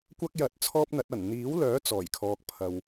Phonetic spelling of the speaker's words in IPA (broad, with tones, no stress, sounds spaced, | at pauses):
kʷ ɐ˥ k̚ j ɐ˧ t̚ t͡sʰ ɔː˥ p̚ n̪ ɐ˨˥ t̚ ɐ˨˩ n n̪ iː˨˥ w l œː˨˥ t͡s ɔː˨˩ j kʰ ɔː˨ k̚ pʰ ɐ˨ w